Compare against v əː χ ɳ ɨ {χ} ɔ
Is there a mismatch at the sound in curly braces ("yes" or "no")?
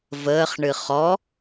no